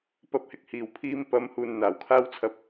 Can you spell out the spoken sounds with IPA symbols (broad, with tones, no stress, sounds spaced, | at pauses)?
p ɐ˧ p̚ h ɪ˨ k̚ h iː˨˩ w pʰ iː˧ m p ɐ˨˥ m h uː˨ n n̪ aː˨˩ w kʰ aː˥ w t͡sʰ ɐ˧ p̚